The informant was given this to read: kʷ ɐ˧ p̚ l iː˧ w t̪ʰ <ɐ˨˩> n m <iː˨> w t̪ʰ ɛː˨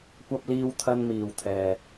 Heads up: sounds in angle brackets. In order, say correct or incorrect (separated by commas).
incorrect, correct